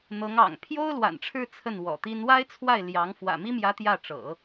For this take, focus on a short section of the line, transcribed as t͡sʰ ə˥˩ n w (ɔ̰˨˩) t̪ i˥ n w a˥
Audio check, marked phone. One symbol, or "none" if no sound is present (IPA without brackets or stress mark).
ɔ̰˨˩